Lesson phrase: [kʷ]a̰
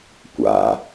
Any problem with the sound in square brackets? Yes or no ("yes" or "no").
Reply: no